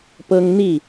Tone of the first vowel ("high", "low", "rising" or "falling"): high